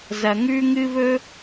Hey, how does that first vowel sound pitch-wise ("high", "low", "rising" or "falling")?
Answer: low